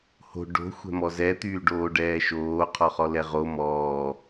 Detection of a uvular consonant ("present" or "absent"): present